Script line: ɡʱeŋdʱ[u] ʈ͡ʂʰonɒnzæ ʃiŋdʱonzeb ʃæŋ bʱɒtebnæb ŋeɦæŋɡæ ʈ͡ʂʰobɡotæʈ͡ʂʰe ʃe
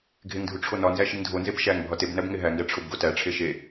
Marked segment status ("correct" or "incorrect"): correct